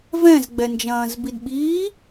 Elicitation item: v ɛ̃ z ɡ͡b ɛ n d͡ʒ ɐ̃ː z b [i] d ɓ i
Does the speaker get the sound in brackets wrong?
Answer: no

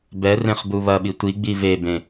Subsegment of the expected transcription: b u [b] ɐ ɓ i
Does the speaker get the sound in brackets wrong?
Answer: yes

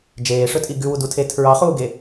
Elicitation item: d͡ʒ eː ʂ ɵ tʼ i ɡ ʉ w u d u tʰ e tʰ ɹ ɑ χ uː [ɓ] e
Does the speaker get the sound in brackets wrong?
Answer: yes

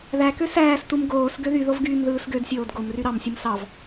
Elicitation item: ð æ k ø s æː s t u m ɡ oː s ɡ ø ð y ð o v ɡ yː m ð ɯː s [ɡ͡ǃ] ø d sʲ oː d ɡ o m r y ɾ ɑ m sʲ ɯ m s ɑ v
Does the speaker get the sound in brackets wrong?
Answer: yes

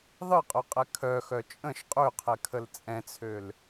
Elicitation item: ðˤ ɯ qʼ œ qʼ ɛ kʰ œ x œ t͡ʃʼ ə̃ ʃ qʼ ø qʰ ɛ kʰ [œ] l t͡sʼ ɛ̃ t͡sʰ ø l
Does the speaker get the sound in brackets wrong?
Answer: yes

